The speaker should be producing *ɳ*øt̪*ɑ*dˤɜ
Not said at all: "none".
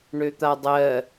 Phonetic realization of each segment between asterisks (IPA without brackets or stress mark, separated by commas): ɳ, a